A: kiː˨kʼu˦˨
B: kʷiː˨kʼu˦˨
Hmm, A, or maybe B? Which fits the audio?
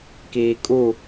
A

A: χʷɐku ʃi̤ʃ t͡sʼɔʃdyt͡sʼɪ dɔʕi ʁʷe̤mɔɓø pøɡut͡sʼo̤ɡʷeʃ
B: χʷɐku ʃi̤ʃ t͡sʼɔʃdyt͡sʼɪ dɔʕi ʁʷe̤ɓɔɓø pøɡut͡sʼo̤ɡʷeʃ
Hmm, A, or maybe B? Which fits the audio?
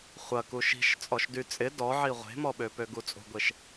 A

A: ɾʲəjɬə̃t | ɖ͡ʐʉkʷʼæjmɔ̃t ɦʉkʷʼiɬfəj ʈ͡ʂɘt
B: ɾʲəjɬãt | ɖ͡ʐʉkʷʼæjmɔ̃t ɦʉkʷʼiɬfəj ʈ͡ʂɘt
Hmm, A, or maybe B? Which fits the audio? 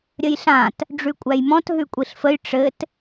B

